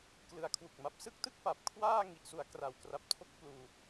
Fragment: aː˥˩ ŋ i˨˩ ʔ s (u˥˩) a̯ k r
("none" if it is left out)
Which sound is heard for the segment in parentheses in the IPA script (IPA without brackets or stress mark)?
u˩˦